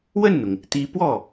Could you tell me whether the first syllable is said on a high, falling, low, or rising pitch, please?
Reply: falling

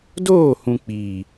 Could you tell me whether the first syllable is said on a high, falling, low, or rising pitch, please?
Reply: falling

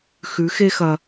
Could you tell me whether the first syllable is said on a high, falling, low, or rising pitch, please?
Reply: rising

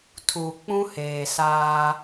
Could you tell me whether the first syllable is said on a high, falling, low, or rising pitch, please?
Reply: low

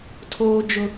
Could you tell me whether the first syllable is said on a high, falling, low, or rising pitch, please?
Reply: high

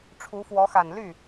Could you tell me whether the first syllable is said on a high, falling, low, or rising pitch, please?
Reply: rising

